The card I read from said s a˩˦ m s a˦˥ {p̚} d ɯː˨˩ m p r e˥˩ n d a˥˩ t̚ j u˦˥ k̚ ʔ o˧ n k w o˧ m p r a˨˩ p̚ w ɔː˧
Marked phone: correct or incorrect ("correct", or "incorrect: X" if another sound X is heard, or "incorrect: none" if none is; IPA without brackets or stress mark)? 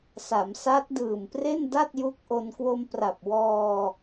incorrect: t̚